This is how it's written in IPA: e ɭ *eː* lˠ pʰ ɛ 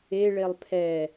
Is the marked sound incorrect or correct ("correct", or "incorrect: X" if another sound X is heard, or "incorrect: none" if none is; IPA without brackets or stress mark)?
incorrect: e